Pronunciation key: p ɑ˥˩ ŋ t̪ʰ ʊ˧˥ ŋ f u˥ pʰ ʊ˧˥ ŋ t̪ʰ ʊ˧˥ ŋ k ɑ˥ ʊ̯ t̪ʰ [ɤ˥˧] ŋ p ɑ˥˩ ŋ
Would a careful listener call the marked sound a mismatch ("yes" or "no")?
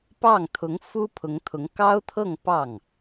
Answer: no